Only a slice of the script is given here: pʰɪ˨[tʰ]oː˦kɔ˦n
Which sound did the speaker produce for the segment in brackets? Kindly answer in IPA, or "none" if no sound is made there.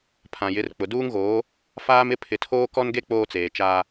tʰ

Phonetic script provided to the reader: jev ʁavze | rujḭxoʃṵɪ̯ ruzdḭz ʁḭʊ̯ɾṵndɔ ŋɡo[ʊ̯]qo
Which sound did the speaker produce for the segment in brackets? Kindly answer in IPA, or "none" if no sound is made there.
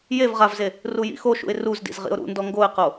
ɪ̯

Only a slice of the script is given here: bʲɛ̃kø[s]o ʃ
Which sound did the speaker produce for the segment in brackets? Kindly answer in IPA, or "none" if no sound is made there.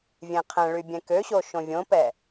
ɕ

